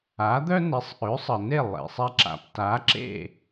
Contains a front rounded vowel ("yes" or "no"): yes